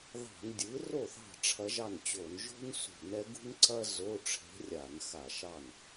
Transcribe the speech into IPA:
ð ɑ̤˧˩˧ n dʲ ɯ˩˥ r o˥˩ θ ɑ̤˥˩ ʈ͡ʂʰ ɐ˧˥ ʒ ɑ˥˩ n t͡ɕ o˧˩˧ n ʒ o̤˥ n s ṳ˧˩˧ n ɛ˧˥ ɡ ṳ˥ n ǀ ɐ˥ z o˧˥˧ ʈ͡ʂʰ e̤˧˥ rʲ a˧˩˧ n x a˧˩˧ ʃ ɑ˥˩ n

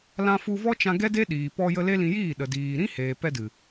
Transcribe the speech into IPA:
l ã˦ f u˧ v ɔ˦ t͡ʃ ã˧ ɡ ɛ˦ d e˦ ɗ iː˨ p ɔ˧ j ə˧ l e˦ l ĩ˧ j iː˦˨ ɗ ə˨ d iː˨ ɾ ĩ˦ h eː˨ p ɛ˧ d ɨ˨

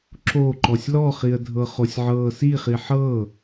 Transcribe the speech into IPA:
ǁ o ǃ ɔ sʲ l ɔ χ i ə̯ dʱ ɤ χ o sʲ ʕ ɤː s i χ i ħ ɤ

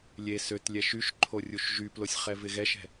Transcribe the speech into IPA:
lʲ e s ø t lʲ ɛ ʃ y ʃ ǃʰ o rʲ u ʃ ʒ y p l o sʲ χ ɛ v ɪ ɣ ɛ ʃ ɛ̤

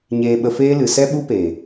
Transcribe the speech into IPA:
ɲ eː˧ ɓ ə˧ f eː˦ l ɨ˨ s ɛ˦ ɓ u˦ p eː˨

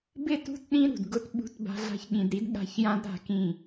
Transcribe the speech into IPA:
b ɪ˦˨ t ṳ˦˨ t ɗ ĩ˦ ɾ ṳ˨ d ɡ ʊ˦ t ɓ ṳ˦ t b a̤˦ ɮ a̤˦ ç ɠ ĩ˨ d ɾ i˦ d ɠ a̤˦˨ ç j ã˦ d ɾ a̤˦˨ k ĩ˦˨

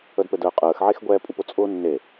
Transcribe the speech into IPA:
ə d p ɘ d əː qʼ əː x ʕ e x ɡʷ ɛː pʼ u p ʊ t͡sʼ ʊː nː e

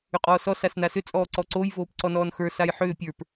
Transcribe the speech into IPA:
ʏ qʼ ɔː s ɔ s a s n a s ʏ t͡sʼ ɔː ǀ ɔ ǀ o j v oː p ǀ ɔ n ɔː n x ə˞ s a j ħ ʏː pʲ ə˞ p

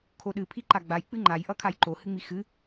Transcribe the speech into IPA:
kʰ o ɗ ɨ pʰ i ǃ a ɡ͡b a j k͡p ɨ ŋ͡ǃ a j ʔ ʌ kʰ a j ǃ o h ɨ ŋ͡m i x ɨ

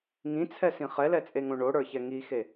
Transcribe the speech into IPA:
ŋ ĩ t͡sʰ ɛ s ĩ χ ɛ l ɛ t͡sʼ e ŋ õ ɳ o ɽ ə˞ ç ɛ ŋ i x e

